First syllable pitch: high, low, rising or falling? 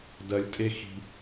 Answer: low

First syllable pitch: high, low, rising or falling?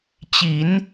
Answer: rising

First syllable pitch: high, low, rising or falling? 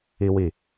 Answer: high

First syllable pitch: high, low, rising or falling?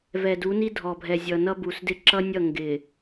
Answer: low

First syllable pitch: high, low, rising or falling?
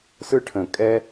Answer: high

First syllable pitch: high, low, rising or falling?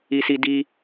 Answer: high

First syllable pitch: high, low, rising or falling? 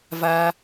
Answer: high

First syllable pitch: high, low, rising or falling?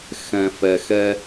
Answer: low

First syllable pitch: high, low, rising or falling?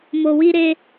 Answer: low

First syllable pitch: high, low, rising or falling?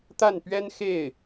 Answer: falling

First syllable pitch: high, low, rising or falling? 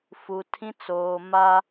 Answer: low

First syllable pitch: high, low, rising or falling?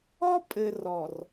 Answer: high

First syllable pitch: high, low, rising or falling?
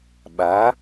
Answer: rising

